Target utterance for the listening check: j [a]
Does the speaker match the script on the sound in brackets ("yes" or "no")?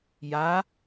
yes